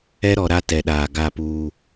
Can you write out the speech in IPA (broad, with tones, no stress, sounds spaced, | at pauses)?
ɛ˦ ɾ ɔ˨ ɾ a˦ t ɛ˨ ɗ aː˨ ɡ a˦˨ p uː˨